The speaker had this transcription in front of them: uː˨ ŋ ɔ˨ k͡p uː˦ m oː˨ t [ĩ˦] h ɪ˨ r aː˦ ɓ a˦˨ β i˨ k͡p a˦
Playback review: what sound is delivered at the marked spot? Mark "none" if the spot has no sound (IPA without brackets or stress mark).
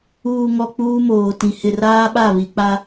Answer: ĩ˨